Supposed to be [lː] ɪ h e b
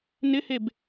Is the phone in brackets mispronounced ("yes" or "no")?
yes